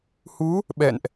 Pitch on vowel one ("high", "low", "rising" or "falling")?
rising